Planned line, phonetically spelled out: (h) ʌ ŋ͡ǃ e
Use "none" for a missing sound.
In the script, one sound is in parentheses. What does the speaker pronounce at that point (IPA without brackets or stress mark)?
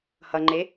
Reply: h